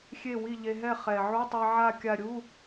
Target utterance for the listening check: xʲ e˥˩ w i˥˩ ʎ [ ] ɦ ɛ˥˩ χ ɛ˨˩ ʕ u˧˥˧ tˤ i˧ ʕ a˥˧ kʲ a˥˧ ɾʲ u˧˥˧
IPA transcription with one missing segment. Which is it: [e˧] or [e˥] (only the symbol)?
e˧